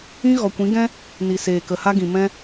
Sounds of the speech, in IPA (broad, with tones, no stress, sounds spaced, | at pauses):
ĩ˦ ɣ ɔ˨ kʷ ĩ˨˦ ɡ ɛ̃˦ | n i˨ s eː˨ k ə˨ h a˦ ɡ ĩ˨ m ɛ̃˦